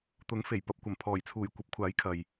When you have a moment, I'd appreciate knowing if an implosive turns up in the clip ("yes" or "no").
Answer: no